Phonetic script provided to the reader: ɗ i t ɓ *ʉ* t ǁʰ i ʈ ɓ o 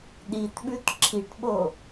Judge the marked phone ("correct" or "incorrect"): correct